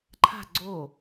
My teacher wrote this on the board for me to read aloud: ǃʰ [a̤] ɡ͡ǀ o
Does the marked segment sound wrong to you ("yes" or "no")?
no